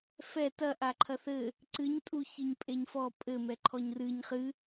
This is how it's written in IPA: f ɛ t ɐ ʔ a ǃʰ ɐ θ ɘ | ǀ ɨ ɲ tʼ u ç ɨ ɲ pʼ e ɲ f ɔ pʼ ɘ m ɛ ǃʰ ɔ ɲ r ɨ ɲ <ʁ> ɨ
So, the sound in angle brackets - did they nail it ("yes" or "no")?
no